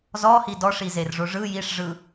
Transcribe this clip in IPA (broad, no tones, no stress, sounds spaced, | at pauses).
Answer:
z ɔ h i d ɔ ʂ i z e r ʐ o ʐ ɯ j i ʂ ʐ ɯ